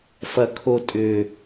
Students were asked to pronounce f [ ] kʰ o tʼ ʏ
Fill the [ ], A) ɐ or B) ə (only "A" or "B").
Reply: A